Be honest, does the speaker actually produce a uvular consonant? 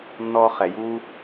yes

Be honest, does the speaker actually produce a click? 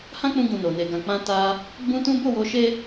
no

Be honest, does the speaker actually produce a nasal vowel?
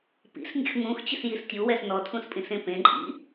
yes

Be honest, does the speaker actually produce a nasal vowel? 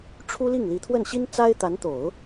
no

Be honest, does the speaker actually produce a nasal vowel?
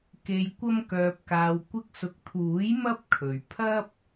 no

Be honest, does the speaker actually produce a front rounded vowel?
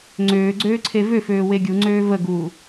yes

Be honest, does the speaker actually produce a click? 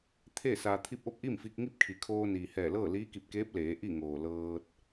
no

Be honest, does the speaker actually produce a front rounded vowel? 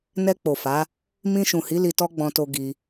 no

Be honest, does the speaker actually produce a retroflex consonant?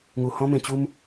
no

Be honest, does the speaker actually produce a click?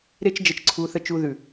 yes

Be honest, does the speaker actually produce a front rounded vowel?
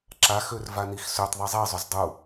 yes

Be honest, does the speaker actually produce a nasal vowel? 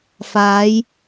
no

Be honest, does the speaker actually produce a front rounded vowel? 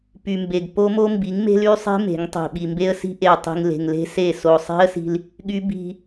yes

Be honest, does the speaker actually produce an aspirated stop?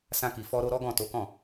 no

